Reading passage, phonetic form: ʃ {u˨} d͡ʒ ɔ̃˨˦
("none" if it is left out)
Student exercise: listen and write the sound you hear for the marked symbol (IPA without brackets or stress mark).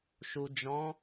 u˨